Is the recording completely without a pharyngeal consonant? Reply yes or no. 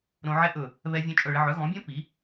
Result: no